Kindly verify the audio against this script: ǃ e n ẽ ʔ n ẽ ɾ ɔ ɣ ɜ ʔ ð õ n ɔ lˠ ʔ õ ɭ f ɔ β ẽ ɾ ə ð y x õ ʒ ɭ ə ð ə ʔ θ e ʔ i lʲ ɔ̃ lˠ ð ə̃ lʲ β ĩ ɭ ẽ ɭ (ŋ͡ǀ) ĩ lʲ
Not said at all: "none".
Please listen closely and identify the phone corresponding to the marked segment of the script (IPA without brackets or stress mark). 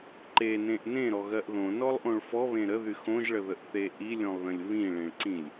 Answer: ǀ